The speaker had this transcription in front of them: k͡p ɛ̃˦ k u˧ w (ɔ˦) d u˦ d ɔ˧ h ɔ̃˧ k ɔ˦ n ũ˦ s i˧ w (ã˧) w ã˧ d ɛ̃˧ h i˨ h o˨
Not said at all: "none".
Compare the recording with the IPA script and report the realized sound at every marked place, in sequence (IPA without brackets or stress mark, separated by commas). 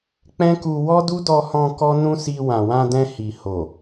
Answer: ɔ˦, ã˨